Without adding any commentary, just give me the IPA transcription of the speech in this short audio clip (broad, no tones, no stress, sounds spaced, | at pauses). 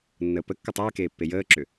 nː əː p ə kː ə tˤ eː k eː pː e j əː ǁ ʏ